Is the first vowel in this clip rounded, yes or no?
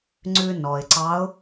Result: yes